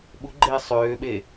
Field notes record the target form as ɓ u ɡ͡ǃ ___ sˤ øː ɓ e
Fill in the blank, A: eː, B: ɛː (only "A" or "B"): A